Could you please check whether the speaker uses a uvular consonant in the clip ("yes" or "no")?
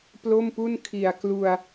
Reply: no